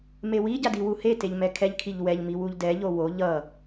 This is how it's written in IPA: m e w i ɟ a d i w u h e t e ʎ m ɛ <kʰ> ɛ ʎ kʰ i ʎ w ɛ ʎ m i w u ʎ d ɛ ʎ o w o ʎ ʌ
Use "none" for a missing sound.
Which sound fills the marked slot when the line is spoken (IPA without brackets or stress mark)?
kʰ